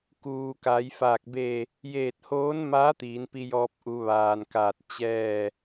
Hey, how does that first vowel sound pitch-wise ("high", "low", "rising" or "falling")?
low